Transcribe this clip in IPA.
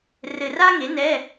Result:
r ɘ˧ r a˥ ŋ e˨˥ n ɛ˧˥˧

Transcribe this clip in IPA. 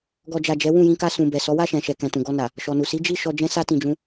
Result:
ɡ ɔ˨ d͡ʒ a˨ d͡ʒ ɛ˨˦ w ũ˦˨ j ĩ˧ k a˧ s ũ˨ b ɛ˨ s ɔ˨˦ w a˦˨ ʃ ɛ̃˨ ʃ ɛ˨ k ɛ̃˨ t ũ˨ ɡ ɔ˧ n a˨ | ʃ ɔ˨ n u˨ s i˨˦ d͡ʒ i˦˨ ʃ ɔ˧ d͡ʒ ɛ̃˦ s a˦ t ĩ˧ d͡ʒ ũ˦

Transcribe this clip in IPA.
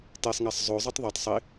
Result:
t e sˤ ŋ æ sˤ zˤ o zˤ u tˤ ðˤ o tˤ sˤ i

